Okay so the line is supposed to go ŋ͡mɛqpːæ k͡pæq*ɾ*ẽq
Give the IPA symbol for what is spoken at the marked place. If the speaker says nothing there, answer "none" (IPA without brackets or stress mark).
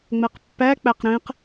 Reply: ɾ